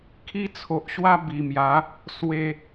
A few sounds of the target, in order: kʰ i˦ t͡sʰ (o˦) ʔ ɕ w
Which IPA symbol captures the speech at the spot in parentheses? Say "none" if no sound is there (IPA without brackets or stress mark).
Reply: o˨